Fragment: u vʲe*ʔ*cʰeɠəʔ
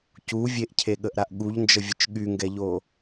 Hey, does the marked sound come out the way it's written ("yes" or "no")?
yes